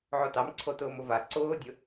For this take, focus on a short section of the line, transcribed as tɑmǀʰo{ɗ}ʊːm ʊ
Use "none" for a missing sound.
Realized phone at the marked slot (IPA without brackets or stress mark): t